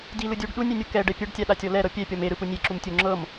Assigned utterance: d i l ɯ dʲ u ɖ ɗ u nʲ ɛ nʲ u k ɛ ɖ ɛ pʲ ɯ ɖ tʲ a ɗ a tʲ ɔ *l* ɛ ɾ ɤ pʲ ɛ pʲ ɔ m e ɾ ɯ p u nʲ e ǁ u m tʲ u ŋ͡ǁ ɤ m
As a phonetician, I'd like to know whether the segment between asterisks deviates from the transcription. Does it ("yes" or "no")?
no